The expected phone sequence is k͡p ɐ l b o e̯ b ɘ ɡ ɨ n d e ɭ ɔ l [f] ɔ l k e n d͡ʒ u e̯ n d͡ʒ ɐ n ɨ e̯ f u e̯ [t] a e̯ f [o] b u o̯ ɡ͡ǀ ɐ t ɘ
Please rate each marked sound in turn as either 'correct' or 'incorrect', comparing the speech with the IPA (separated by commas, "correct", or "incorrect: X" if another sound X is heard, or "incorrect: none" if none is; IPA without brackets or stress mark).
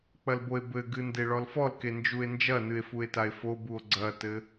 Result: correct, correct, correct